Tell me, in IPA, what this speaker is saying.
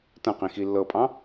t ɐ̃ q ĩ x i lː ɤ pʼ ɑ̃

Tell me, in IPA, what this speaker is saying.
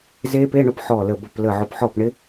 z e˦˥ p e˧˥˧ ɳ ʊ˦˥ p ħ ɔ˧˩ l ə˧˩ b ə˧˩ p l ə˧˩ ʕ ʊ˧˩ p ħ ɔ˥˩ p ɳ ɪ˦˥

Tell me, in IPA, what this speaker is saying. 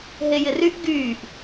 ɦ e j ɪ r y ʔ ɡ yː ʔ

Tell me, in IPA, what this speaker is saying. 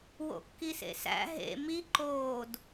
w o̰ kː i s ḛ s æ̰ ɦ ḛ m i ǃ oː d

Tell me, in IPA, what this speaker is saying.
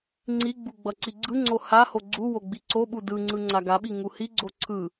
ŋ͡ǀ i ɡ͡b u ɡ͡b ʌ ǀ i ɡ͡ǀ ɯ ŋ͡ǀ o h a h o ɡ͡ǀ u w o ɡ͡b i ǀ o ɓ u d ɯ ŋ͡ǀ ɯ ŋ͡ǀ a ɡ a ɓ i ŋ u h i ɡ͡ǀ o ǀʰ ɯ

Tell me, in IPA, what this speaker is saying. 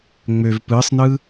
ŋ͡m ø v p ɯ sˤ n ɯ

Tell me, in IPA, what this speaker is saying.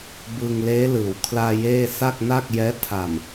b ɯ˧ ŋ l eː˦˥ l ɯː˩˦ w kʰ l aː˧ j eː˥˩ s a˥˩ k̚ n a˥˩ k̚ j ɛː˦˥ tʰ a˨˩ m

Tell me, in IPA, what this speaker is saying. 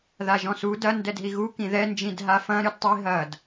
ð a ʒ ɔ̃ s u d ɐ n d ɛ d ɦ i ɣ u k ĩ ð ɛ n d͡ʒ ĩ d ɦ a f ɐ̃ ɾ ɨ d tˤ i ɦ ɐ d

